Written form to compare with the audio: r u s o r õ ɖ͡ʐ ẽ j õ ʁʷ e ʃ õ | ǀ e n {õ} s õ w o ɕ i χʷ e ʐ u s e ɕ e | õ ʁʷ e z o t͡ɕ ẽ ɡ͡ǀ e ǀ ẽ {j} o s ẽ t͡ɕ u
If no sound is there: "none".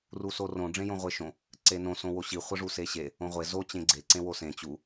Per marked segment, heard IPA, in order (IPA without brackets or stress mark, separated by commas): õ, w